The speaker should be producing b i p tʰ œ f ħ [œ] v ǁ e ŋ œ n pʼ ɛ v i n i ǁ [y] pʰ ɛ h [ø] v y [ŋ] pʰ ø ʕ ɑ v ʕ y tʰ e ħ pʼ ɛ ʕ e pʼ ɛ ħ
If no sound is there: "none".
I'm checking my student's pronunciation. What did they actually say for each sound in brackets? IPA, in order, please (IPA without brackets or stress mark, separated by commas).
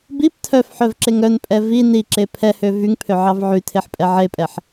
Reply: œ, e, ø, ŋ